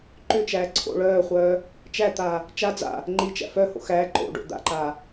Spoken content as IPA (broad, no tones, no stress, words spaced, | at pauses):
ǃʏ t͡ʃæːǀʰo̰ɭœːχʷœː | t͡ʃæt̪aː | t͡ʃa d͡za̰ | ŋ͡ǃit͡ʃæ̰ fœho̰ xæː ǃo̰ɖo̰ d̪a̰ǃaː